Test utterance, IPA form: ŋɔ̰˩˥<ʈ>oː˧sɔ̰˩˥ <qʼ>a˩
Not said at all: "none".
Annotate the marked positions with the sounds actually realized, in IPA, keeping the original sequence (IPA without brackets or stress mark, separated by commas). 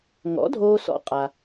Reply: dʱ, qʼ